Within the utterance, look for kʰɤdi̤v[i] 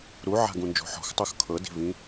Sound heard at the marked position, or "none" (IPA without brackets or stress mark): ĩ